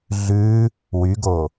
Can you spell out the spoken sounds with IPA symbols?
ɮʉ | wyɡo

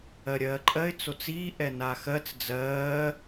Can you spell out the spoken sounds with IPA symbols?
ɜɾʲɜːǃʼɜɪ̯ t͡sot͡siː ʔɛnaxɜt͡s d͡zɜː

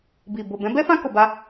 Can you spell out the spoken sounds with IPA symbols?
bi˨ bo˨bɛ̃˨˦bɛ˦fã˦ ko˧ba˦

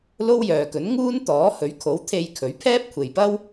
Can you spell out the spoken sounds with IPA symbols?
lo˥wjœː˨kɵ˨˥n ŋuː˥n t̪ɔː˨˥hɵ˨˥ɥkʰo˨˥w t̪ʰe˧jkʰɵ˨˧ɥ pʰɛː˥p̚kʷʰe˨jpɐ˥w

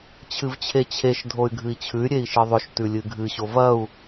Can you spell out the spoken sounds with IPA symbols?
t͡ɕʰɨvt͡ɕʰet͡ɕʰeʃ dʱoy̯ɡʱɨi̯t͡ɕʰʉy̯ ɾʲei̯ʃɨðˤɵʃ tʉlʲɨɡʱɨ ɕovɐu̯

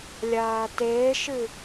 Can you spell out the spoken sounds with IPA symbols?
lʲaːteːʃɨ

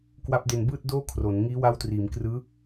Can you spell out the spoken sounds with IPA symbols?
kwa˦˥p̚de˧nbɯː˥˩t̚ doː˥˩kʰro˩˦n ŋiː˦˥wa˦˥wtriː˩˦mkrɯː˦˥

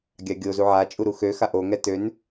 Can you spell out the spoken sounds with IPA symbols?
ɡʲaɡʲo zuʕa t͡ʃʼuɾuxø xaʔo ŋɛtøn

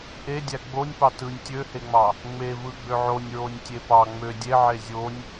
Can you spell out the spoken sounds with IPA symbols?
ʔedʲæ ɡ͡bonʲ pɑtɯnʲ tʲøheŋ͡mɑ | ŋ͡mevɯ ɡ͡bøʕonʲɹonʲ tʲepɑ ŋ͡mø dʲeʕe zʲonʲ

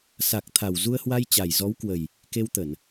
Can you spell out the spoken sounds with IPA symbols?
sa˨˩k̚t̪ʰa˨˩w zu˧ə̯hwa˧jt͡ɕa˨˩j zɔ˨˦wkwə˨˩j | ke˧wt̪ə˧˩˨n

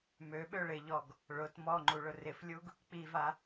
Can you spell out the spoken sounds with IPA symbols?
møɓøɭ ɪʎɔɡ | ɭʊt mɔŋ͡ǃuɭʊ rɪflʲuɡ | k͡piva

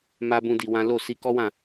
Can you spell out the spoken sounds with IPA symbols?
ma˦bũ˦di˧wã˦ lo˦˨ si˧ kɔ˦wã˦˨

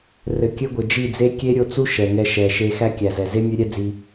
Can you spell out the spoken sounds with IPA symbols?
rɘ˨ kʲɘ˦ɡʷɘ˨ d͡ʒi˦˨d͡ze˦ kʲe˦ɾʲo˧t͡su˦ ʃɛ˨ ŋɛ˧ʃɛ˨ ʃe˦ xæ˦kʲæ˨zɛ˨ ze˦ mʲɘ˦ɾʲɛ˦d͡zi˧

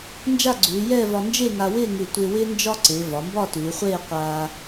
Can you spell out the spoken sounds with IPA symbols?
nd͡ʒa˥˧ɡ͡ǀʉː˩˧jɛː˥˧vɒ˧ nd͡ʒe˥˧ŋa˧wɪː˥˧ ŋʉ˧˩ tʷɪː˧wɪː˥ nd͡ʒɒ˥ǀɪː˩˧ vɒ˩˧mbɒ˥˧ tʉː˩˧χʷeː˥˧qʷaː˧

